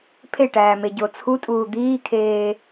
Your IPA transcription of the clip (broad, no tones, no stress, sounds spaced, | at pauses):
pʰ e ʈ æː m e ɟ o t͡sʰ u tʼ uː d̪ iː kʰ eː